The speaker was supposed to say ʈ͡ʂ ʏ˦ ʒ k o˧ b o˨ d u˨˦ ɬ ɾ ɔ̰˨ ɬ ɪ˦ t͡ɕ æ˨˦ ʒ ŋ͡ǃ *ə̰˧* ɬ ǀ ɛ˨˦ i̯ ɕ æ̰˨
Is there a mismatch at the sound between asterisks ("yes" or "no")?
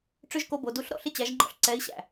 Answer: yes